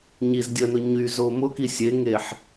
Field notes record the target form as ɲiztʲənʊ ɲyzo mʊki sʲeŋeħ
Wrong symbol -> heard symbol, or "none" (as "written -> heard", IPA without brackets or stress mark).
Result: tʲ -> dʲ